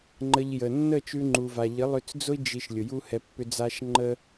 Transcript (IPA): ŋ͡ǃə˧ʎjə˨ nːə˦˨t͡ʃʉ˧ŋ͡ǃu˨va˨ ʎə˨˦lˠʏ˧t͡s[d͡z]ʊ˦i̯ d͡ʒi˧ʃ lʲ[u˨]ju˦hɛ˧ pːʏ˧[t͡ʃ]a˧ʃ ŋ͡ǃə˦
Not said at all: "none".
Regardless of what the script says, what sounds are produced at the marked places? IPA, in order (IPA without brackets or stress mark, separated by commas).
d͡z, ʊ˨, d͡z